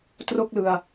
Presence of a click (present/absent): absent